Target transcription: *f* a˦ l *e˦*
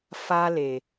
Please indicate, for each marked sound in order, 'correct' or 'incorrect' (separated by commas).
correct, incorrect